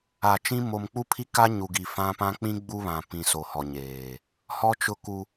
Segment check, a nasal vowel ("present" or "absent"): present